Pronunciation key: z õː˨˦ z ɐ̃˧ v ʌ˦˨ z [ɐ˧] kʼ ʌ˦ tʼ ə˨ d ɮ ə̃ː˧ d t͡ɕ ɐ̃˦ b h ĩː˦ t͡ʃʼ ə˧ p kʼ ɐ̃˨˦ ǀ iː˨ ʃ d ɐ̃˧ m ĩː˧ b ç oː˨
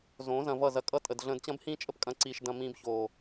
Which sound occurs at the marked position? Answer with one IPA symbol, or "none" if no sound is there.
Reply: ɐ˧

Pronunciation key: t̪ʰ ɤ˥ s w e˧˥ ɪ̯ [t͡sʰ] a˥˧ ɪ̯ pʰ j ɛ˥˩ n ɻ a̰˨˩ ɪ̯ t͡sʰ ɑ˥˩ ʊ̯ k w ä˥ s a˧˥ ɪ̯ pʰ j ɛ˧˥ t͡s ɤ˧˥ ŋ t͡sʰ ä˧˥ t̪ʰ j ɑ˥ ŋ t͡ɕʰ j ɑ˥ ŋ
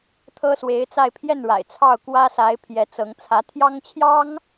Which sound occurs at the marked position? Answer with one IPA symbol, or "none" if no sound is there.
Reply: t͡s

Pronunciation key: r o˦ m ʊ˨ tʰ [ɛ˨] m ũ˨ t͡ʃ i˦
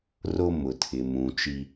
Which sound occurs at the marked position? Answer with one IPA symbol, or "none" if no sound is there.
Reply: ɪ˨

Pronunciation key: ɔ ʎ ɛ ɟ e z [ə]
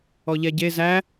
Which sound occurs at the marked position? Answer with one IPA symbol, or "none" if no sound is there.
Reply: æ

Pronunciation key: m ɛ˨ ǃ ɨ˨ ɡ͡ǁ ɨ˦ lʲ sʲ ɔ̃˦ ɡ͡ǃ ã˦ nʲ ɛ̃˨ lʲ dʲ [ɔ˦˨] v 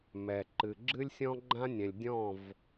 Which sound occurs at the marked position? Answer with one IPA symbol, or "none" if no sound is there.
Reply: ɔ̃˦˨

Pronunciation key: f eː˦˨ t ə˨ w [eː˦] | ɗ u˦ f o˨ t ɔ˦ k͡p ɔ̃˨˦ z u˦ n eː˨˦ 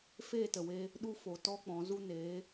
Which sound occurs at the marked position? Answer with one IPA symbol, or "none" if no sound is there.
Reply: eː˧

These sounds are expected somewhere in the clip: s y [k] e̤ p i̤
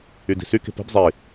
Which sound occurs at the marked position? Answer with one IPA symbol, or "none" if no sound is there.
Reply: k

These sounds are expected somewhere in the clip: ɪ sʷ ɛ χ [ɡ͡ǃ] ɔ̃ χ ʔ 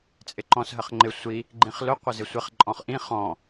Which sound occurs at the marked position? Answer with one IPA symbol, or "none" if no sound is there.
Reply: ǃʼ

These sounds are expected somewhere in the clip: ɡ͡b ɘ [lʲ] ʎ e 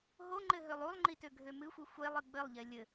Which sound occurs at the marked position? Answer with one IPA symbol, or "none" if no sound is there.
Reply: lˠ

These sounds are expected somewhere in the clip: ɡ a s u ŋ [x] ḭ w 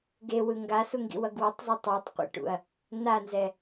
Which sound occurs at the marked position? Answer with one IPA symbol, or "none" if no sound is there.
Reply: ɡ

